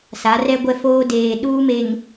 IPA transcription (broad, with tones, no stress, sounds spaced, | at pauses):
s a˨˦ r ɛ˦ ɡʷ ɛ˦ f oː˦ d eː˨ ɗ uː˦ m e˨ ŋ